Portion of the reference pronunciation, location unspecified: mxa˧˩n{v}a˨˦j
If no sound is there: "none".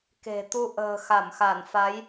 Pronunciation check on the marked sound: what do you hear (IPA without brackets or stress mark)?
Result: f